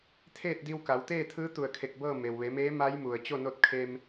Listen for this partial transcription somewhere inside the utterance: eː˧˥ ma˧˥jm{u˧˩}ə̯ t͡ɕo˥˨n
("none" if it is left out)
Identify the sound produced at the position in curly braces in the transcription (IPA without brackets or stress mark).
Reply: u˩